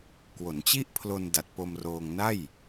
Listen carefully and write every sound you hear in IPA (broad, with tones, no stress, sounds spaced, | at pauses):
k w o˩˦ n t͡ɕ i˥˩ ʔ pʰ l o˧ n d a˨˩ t̚ p o˧ m r oː˧ ŋ n a˥˩ j